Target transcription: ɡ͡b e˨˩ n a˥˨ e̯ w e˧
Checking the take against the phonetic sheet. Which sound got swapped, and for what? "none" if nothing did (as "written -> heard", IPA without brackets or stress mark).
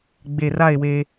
n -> r